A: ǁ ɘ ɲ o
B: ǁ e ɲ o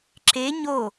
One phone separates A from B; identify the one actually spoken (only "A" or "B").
B